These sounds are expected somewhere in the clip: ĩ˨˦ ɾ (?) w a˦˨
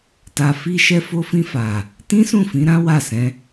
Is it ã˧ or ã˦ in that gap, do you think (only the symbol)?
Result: ã˦